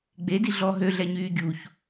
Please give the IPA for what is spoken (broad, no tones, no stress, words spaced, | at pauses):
ɡ͡bedi ɮɔ ɦøɮɛɲyː ɡʲuç